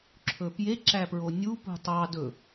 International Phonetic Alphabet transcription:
ǁʰɵpje ǁæpɹonʲu pṳtˤɑ dɵ

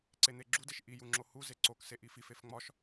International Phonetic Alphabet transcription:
ǀen̪eɡ͡ǁudeʃ ʔiju ŋ͡ǁohuze ǀokse ʔififef ŋ͡mɒʃ

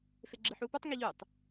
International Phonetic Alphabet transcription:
feɡ͡ǁɯħuːpotˤ ŋiʎutˤ

